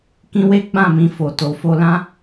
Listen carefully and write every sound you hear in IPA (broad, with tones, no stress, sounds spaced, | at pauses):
k ĩ˧ w e˦ ɡ͡b ã˦˨ m ĩ˧ f o˨ t o˨ f o˧ l ã˦